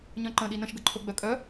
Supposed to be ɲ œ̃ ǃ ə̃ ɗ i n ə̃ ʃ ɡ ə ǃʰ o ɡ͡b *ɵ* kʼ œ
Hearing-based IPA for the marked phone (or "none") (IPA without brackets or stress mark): œ